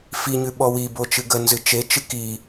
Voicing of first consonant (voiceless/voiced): voiceless